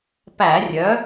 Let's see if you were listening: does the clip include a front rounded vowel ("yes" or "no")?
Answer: yes